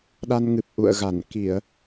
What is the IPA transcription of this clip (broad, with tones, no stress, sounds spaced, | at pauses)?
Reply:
ɗ a˧ n ŋ ɨ˨˩ p̚ ʔ ṵ˧˨ ə̯ ɣ a˧˩ n k i˧˩˨ ə̯